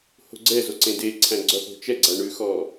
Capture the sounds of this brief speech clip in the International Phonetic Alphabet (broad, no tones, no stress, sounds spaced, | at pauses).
h o̤ ɡ͡ǀ ɛ z o ǀ ẽ d e ǀʰ æ̃ ɡ͡ǀ ɔ θ o̤ t͡ʃ ɛ ɡ͡ǀ æ ɳ ʉ x ɔ